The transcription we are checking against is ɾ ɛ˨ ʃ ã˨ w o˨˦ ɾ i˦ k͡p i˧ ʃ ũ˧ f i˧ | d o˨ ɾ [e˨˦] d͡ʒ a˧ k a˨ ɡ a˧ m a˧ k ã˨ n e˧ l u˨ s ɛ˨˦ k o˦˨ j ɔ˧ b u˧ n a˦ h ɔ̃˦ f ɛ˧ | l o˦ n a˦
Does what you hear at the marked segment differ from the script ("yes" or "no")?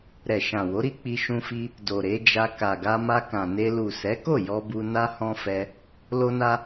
no